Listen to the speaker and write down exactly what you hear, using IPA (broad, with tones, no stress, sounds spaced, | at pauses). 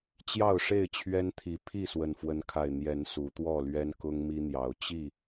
t͡ɕ j ɑ˥˨ ʊ̯ ʂ e˥˨ ɪ̯ t͡ɕʰ ɥ ɛ˦ n t̪ʰ i˨˦ pʰ i˥˨ s w ə˨˩ n f w ə˨˦ n kʰ a˨˩ ɪ̯ n̪ j ɛ˨˦ n s u˨˦ t̪ w ɔ˥˨ l ɥ ɛ˦ n k ʊ˦ ŋ m i˦ n̪ j ɑ˨˦ ʊ̯ t͡ɕ i˥˨